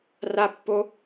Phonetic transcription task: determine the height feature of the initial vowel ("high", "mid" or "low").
low